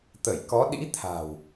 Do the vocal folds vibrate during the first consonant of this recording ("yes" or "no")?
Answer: no